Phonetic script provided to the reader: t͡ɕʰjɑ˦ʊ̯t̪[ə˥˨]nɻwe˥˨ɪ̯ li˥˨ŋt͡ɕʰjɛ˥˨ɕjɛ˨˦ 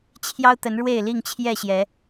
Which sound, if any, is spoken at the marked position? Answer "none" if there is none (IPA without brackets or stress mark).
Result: ə˨˦